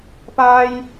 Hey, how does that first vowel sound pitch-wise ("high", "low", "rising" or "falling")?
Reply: high